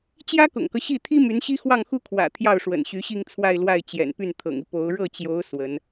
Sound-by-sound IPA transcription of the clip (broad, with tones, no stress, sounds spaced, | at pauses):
t͡ɕ j ä˥ k ʊ̰˨˩ ŋ k ɤ˦ ɕ i˥˩ t̪ʰ i˥ m y˧˥ n ɕ i˥ x w ɑ˥˩ ŋ x u˥ kʰ w ä̰˨˩ t̪ʰ j ɑ˥˩ ʊ̯ ʂ w ə̰˨˩ n ɕ y˧˥ ɕ i˥˧ ŋ t͡sʰ w a˥˧ ɪ̯ l w a˥˩ ɪ̯ t͡ɕ j ɛ̰˨˩ n p y˥˩ n t̪ʰ ɤ̰˨˩ ŋ i˦ p o˧˥ ʊ̯ ɻ ɤ˥˩ t͡ɕ j o˧˥ ʊ̯ s w ə˧˥ n